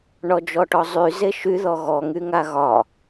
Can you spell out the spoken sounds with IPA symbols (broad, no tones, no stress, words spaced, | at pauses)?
ɳɔd͡ʒɔʈɔzˤy zeʃy ðɔɣɔ ŋyŋaɣɒ